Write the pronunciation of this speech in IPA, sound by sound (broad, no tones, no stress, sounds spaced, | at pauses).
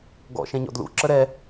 ɡ ɔ̰ ʃ ɛ̃ ɲ ɔ̰ d l ṵ ǁ ə ɾ ɛ